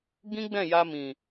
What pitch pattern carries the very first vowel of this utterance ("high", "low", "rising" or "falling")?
high